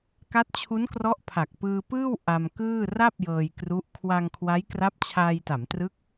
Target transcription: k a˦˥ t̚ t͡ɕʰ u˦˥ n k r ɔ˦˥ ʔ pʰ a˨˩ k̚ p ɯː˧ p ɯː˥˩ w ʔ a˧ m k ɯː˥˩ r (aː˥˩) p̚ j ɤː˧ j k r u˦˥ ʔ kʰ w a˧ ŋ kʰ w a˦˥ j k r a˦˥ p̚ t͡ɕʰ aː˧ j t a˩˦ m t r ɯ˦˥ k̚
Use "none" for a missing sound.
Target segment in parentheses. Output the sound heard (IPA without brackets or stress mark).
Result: a˥˩